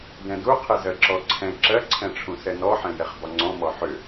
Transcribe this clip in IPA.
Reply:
dɛ̃du qʰɛzɜǁɔǀʰɛ̃ ǁɜǀʰɛ̃ʈ͡ʂʰũ sɛnɔħɛ̃jɛχ bɒŋ͡ǀɔ̃mɔ ħʏ

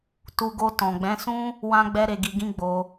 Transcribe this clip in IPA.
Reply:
tu˧ɡo˧ tɔ̃˨ɡ͡bɛ̃˨˦sũ˦ | wã˦ɡ͡bɛ˦ ɾe˧ɡi˧ɡĩ˦ ɡ͡bo˧

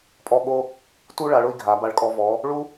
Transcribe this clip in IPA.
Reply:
pʼɔ˥˧ɠo˥ | tu˥ɭa˩˧ɭʊ˥˧i̯ɡʱa˩˧ ba˧˩ɭkʼɔ˧vɔ˩˧ | ɭu˥

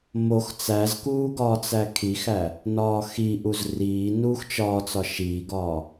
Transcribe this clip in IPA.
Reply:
mox t͡sæzkuː ɡɒːt͡sækʰixæ | nɒːxiʔuz riːnuːx t͡ʃɒːt͡sɒ ʃiːɡɒː

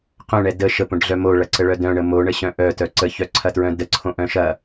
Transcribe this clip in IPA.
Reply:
qœ̃ɳɛ də ʃəpõɖɮœ moɭɐǀəɭœ dœ̃ɳə moɳəɕœ̃ ʔœtœ ǀəçœǀʰɐtɹœ̃ dəǀʰõʔœ̃ ʃɐ

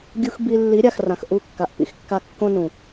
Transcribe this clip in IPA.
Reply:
ɡʲu˧x bi˧ lːi˨˦ɾʲa˨xrã˨x ʔu˦˨kːa˨ʔ pḭ˦xkːa˦ kːõ˦nũ˨

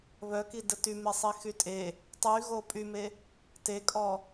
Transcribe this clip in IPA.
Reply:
βœkidə tymesˤixy tʼe | tˤyɣo pʼyme | tekʼɔ

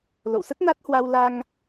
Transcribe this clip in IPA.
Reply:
lo̰˧˨wsə˦˥t̚na˦˥t̚hwa˧w la˧ŋ

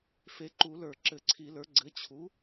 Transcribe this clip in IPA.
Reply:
fe˩˥ǃu˨˩˦lə˞˨˩˦ ǁɘ˨˩˦ǀʰi˨˩˦lə˞˩˥ ɡ͡ǀɘ˩˥t͡ɕʰu˩˥

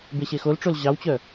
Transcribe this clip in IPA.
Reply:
beɕexolʈ͡ʂol ʑɑwt͡ɕœ

